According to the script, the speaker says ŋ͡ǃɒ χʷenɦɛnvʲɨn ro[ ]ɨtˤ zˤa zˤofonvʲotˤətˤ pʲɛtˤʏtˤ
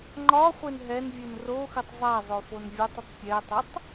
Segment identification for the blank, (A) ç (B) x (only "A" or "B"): B